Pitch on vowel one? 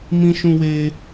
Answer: high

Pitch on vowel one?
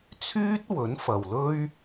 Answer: high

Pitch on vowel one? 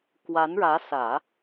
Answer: rising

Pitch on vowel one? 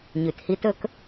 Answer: low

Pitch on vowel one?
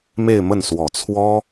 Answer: falling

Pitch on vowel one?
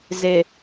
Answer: low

